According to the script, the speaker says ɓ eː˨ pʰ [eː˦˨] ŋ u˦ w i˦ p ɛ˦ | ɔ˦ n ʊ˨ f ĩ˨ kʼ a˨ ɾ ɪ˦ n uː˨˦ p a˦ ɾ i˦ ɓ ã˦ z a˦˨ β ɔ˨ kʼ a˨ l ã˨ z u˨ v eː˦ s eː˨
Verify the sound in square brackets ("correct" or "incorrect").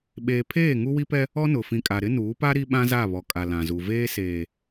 correct